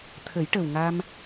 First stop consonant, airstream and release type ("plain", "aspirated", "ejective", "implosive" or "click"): aspirated